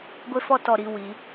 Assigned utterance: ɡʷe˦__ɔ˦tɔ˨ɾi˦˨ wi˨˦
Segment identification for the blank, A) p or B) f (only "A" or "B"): B